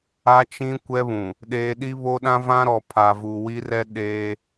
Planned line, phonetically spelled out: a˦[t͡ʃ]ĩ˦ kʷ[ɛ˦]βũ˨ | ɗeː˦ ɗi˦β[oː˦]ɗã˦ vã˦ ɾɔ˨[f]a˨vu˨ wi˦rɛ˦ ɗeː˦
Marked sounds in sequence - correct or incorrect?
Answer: correct, correct, incorrect, incorrect

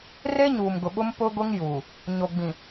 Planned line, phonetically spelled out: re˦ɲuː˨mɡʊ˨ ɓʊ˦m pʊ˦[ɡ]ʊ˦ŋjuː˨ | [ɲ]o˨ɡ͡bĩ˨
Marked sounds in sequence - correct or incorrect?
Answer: correct, correct

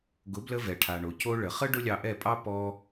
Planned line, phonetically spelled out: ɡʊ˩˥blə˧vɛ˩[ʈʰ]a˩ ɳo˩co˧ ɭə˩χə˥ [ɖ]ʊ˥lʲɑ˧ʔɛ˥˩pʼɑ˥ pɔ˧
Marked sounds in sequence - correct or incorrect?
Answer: correct, correct

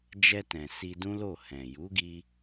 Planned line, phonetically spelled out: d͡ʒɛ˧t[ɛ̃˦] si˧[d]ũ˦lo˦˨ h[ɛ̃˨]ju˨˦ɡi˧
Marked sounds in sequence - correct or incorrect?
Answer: incorrect, correct, correct

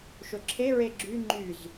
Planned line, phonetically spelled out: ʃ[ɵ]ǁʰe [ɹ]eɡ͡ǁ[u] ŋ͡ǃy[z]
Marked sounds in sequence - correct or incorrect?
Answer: correct, correct, incorrect, correct

